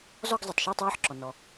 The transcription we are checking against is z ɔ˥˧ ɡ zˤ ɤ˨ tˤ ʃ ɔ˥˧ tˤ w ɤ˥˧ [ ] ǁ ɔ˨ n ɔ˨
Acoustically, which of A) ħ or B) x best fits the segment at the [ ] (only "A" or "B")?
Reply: A